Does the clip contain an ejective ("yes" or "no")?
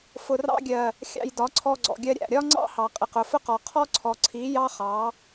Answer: yes